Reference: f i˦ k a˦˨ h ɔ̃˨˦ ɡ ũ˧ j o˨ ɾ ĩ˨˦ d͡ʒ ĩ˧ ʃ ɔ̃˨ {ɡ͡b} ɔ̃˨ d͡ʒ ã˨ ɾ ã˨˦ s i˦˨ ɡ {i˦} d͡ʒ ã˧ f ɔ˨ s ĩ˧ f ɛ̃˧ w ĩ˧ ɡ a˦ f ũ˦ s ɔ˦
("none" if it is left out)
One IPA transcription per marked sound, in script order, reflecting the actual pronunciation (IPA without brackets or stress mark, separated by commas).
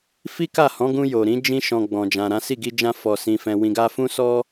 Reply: ɡ͡b, i˧